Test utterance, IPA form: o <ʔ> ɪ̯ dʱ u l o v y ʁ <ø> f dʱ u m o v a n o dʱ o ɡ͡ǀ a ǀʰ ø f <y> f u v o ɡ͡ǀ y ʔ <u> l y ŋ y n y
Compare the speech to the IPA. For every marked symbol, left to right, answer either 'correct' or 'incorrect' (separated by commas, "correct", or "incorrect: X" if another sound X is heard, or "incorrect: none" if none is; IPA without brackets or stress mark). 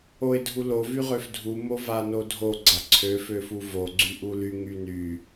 incorrect: none, correct, incorrect: ø, correct